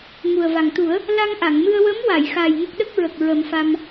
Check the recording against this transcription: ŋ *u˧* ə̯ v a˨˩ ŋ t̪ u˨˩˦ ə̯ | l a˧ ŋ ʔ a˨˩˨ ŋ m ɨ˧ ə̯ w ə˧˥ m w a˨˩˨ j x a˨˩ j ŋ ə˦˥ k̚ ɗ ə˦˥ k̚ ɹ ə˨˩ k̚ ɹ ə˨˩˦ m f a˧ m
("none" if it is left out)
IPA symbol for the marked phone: u˨˩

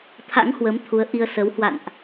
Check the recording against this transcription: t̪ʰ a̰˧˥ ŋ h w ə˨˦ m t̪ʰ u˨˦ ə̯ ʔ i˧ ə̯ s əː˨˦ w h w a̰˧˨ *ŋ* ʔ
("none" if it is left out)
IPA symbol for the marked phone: n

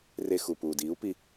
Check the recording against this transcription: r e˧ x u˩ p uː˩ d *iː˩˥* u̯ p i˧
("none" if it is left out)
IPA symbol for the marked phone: iː˩˥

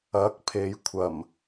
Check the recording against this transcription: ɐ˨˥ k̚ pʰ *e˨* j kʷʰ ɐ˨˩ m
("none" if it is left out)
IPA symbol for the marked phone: e˨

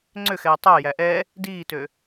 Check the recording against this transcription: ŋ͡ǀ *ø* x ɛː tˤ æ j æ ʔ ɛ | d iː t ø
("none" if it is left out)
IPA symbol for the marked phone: ø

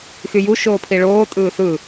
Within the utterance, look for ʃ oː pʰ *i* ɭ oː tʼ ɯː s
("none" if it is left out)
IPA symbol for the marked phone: i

